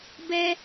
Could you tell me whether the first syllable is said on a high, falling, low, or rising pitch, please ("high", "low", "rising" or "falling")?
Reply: high